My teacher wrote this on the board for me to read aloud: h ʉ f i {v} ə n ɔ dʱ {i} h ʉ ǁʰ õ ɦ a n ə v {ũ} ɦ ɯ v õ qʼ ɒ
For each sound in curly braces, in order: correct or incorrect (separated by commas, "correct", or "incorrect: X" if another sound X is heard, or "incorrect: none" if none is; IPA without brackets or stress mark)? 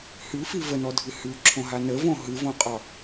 correct, incorrect: ɨ, incorrect: õ